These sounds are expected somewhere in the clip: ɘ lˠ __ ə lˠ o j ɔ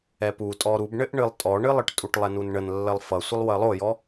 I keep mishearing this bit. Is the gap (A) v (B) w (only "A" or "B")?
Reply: B